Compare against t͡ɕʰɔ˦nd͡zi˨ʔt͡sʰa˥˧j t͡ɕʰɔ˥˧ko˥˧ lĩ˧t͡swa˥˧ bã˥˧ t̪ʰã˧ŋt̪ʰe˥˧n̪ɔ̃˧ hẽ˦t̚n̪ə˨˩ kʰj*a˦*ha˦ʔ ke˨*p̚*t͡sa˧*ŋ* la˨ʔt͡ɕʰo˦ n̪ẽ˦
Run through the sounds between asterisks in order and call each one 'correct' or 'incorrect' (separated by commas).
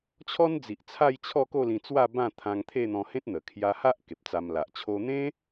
incorrect, correct, incorrect